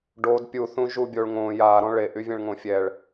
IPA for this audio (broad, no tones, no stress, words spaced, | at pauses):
ɖod pʲuθũ ʒubʲoɭ ŋõ ja ɾɔ̃ɭeʔy vʲɛ̃ɭŋõfʲɛɭ